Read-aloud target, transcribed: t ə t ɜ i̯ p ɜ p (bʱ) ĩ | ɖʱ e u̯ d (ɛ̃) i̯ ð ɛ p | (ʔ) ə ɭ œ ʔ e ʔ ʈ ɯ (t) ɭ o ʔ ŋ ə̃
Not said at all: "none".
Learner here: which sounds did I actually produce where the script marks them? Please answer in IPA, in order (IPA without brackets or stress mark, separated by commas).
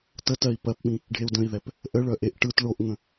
ɓ, ə̃, ʔ, t